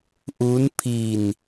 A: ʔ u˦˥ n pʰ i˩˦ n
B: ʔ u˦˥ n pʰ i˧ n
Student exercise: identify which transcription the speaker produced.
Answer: B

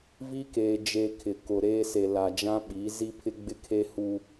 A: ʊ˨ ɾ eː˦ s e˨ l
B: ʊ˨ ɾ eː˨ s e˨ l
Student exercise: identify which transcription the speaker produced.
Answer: A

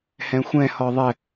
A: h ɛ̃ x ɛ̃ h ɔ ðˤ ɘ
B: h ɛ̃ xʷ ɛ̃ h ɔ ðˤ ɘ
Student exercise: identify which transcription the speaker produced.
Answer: B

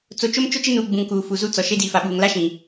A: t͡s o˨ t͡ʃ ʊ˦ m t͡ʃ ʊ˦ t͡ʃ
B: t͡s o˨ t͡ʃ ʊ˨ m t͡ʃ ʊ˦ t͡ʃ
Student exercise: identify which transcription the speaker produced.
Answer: A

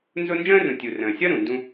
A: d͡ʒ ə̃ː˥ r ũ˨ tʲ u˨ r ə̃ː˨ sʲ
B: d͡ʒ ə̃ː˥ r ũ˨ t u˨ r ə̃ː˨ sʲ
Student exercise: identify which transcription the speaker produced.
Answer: A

